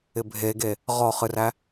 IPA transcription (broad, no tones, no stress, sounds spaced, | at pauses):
ɪ bʱ e ɡ e | ʁ ɔ χ ɨ r æ